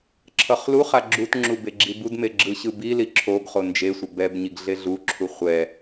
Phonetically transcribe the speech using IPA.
ǁʰ ʌ χ l u χ a ɡ͡ǁ u t ŋ͡ǁ u b e ɡ͡ǁ i b u d m e ɡ͡ǁ ɯ ɕ ɯ b i l i ǁʰ o ɡ χ o n d͡ʒ e sʷ ʌ b ɛ b ɲ i ɡ ɮ e ɮ u ǁʰ u χʷ ɛ

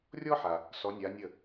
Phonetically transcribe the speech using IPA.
rʲ ɔ˥ ħ a˩ | s ɔ˨˦ nʲ a˨˦ nʲ ə˥˩

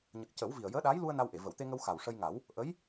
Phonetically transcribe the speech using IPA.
ɲ ə˨˩ k̚ c ə˨˩˦ w v i˨˩ ə̯ j əː˧˥ ɗ aː˧˥ j l u˧ ə̯ n a˧ w ʔ e˨˩˨ v ə˨˩˨ w t̪ e˧ ŋ ə˧ w x a˨˩ w ʂ ə˧ j ŋ a˨˩˦ w | ʔ ə˧˥ j

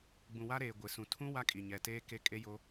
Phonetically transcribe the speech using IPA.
ɡ͡b ũ˨ w a˦ ɾ eː˨ ɡʷ ɪ˨ s ũ˨ tʰ ũ˦ w a˦ kʼ i˨ ɲ ɛ˨ t eː˦ k e˦ kʼ e˦ j o˦

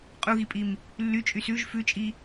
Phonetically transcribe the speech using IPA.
qʼ u ɣ i pʼ i m | lː y t͡ʃʼ y s ʉ ʒ f ʉ t͡ʃʼ i

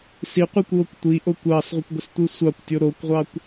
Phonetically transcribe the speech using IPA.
s i qʷ i kʷ w o kʷ tʷ i ʔ o kʷ ɑ s ʁʷ ə kʷ ɡʷ ə s tʷ i sʷ ɑ kʷ tʲ o ɾ o kʷ ʁʷ ɑ kʷ

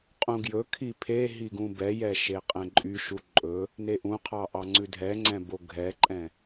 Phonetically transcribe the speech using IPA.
qʼ ũ ɡ j ɵ kʰ i pʰ e ɦ i ɡ ũ b ɛ j ɛ ʃ e qʼ ɛ̃ ǃʼ y ʃ u ǃʼ ɵ | n e ʔ ũ qʰ ɑ ʔ ɑ ŋ͡ǀ ʉ dʱ ɛ ŋ͡ǀ ɛ̃ b o ɡʱ ɛ ǃʼ ɛ̃

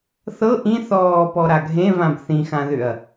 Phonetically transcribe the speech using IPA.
θ ɤ ʔ ĩ θ ɔː p ɔ ɾ a ɡʱ ẽ v ã b θ ĩ x ã ð ʏ ɐ̯

